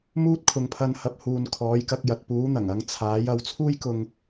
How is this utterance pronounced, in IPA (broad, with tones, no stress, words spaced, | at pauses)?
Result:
muː˥t̚kʰʊ˨ŋpʰɐ˧nhɐ˧p̚ huː˨nkʰɔː˨˥jkɐ˧k̚ jɐ˨t̚puː˨˥ n̪ɐ˨˩ŋɐ˨˧ŋ t͡sʰaː˨˥j ɐ˨˥w t͡sʰuː˥jkʊ˧ŋ